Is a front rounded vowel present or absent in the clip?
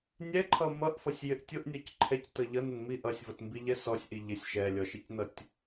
absent